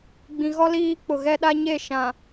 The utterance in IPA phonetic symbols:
ɡ͡b ĩ˨ ɣ ɔ˦ l iː˦ k͡p ʊ˨ ɣ ɛ˦ ɗ a˦ ɲ e˦˨ ʃ ã˨

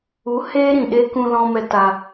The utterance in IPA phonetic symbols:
u˨˦ h eː˦ ɾ ĩ˨ ɗ e˦ k ũ˧ l ɔ̃˧ m ɛ˧ t a˧

